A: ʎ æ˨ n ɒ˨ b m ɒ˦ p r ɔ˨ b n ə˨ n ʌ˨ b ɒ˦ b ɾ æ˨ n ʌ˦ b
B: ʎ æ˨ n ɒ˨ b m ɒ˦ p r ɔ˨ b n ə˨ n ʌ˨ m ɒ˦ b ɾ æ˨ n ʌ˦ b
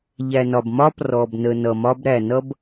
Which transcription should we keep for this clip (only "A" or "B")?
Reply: B